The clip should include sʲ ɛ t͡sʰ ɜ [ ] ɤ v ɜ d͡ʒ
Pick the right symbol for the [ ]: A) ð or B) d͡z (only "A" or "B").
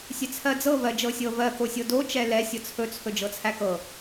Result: B